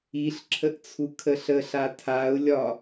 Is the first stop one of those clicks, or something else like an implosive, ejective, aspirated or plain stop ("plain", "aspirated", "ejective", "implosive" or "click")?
click